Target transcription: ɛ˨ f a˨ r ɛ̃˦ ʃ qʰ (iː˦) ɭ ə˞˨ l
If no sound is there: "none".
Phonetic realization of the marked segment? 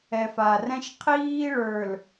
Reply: iː˦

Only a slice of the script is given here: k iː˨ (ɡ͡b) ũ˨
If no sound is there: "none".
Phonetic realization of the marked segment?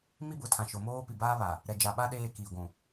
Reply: ɡʷ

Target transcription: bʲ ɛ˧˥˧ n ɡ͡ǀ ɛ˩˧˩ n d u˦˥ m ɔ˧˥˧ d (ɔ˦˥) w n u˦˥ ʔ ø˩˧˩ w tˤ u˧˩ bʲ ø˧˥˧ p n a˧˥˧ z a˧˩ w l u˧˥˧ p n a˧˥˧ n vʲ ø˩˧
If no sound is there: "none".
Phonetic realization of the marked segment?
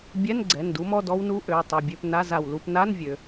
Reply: ɔ˦˥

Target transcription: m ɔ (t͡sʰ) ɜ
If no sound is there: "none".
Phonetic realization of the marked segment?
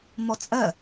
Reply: t͡sʼ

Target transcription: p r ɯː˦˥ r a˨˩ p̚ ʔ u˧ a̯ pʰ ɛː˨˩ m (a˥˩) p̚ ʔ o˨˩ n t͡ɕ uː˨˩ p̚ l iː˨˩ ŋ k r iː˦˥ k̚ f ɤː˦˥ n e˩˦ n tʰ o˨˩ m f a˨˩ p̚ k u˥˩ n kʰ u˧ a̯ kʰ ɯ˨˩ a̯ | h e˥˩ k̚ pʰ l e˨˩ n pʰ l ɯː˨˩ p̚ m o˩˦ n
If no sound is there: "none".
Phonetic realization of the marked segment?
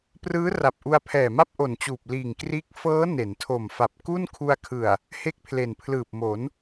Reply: a˥˩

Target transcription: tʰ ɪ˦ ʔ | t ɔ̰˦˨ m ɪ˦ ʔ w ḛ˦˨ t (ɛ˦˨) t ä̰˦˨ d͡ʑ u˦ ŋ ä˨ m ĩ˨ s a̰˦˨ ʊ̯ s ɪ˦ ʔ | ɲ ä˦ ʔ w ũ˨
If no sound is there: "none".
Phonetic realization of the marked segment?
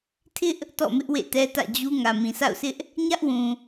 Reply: ɛ˦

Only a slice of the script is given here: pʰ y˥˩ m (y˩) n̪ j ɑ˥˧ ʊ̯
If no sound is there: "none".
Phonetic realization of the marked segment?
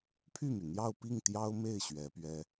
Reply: y˩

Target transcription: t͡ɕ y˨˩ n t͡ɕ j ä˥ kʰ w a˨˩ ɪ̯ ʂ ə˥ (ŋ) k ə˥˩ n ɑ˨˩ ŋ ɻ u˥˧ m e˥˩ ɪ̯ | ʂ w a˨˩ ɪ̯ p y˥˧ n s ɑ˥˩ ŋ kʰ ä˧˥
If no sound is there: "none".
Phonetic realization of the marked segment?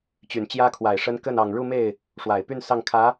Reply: n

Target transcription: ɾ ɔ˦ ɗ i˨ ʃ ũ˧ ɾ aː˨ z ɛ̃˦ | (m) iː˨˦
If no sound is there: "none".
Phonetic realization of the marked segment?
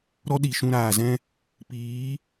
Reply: p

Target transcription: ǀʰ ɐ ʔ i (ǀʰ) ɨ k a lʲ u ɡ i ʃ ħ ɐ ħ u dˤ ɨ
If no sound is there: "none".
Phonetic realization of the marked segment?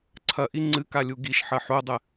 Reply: ŋ͡ǀ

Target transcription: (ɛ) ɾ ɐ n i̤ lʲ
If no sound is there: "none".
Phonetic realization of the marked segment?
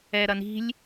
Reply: ɛ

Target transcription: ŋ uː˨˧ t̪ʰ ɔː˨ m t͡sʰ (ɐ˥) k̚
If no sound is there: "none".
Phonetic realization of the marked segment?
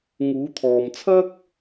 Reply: ɐ˥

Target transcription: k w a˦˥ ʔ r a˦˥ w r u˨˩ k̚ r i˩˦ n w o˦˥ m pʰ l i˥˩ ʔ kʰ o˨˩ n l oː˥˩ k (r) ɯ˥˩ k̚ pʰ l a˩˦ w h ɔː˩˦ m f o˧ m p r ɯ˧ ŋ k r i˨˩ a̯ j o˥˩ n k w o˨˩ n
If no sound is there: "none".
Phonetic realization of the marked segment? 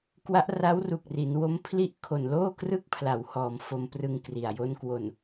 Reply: r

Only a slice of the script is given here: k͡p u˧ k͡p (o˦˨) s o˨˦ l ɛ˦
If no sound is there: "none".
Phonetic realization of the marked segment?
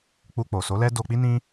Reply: o˨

